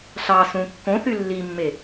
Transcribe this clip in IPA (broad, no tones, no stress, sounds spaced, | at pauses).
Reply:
ɬ ɑ s ũ kː õ θ y lː i mː e